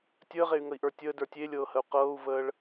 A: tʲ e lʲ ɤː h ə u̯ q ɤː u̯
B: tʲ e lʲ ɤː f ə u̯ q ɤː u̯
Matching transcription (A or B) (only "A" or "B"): A